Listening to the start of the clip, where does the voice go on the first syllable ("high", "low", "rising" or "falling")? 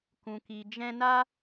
low